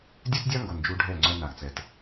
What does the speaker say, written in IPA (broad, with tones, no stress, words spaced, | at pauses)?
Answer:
dʲœ˦tdʲa˦ŋɡo˨n d͡ʒu˧ ɖʱɛ˦˨ŋ͡ǀœ˧ na˨ɡt͡sɛ˨t